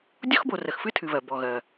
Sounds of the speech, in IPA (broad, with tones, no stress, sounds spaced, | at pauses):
dʲ ɔ˥ x b o˨ r ə˨ x f ɨ˥ tʰ ɨ˨ β ɜ˩ b ɔ˩ ɣ ɜ˩